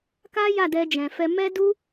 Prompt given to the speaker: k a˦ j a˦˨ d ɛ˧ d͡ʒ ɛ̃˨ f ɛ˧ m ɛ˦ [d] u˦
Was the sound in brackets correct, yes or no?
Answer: yes